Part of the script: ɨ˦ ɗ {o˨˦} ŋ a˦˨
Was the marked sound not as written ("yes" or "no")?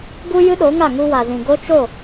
no